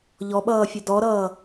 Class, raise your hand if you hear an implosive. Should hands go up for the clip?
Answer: yes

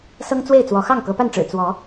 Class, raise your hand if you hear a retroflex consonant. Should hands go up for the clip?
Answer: yes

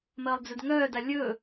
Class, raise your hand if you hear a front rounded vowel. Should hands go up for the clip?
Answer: yes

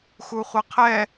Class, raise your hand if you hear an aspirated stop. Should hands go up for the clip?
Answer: yes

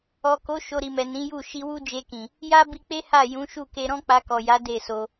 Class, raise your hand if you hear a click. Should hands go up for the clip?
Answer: no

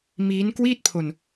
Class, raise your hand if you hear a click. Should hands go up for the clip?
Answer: no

